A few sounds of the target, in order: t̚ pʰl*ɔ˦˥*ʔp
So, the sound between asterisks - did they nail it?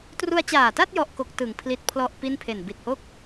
no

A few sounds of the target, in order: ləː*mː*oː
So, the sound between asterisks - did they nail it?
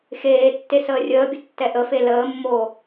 yes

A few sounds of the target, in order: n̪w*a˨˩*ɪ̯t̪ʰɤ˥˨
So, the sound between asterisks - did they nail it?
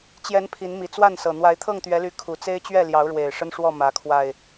no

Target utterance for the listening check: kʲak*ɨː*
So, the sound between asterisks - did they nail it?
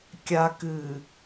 yes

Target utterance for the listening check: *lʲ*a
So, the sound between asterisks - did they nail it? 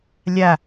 yes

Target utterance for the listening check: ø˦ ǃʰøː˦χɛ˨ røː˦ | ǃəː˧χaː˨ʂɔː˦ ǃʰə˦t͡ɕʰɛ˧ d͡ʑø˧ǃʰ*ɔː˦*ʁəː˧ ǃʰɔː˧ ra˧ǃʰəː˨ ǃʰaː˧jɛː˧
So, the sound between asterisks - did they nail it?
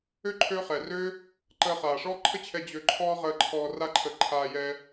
yes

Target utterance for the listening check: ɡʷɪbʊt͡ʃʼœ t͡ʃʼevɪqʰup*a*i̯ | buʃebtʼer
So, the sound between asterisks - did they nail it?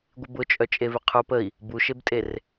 no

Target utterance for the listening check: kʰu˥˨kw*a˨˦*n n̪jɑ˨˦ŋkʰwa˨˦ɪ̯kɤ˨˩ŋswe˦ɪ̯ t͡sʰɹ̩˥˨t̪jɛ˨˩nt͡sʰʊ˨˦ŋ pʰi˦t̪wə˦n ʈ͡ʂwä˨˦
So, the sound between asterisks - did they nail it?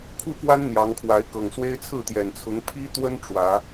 no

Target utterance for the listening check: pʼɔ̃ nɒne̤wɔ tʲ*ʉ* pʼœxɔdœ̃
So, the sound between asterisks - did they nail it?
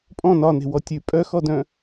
yes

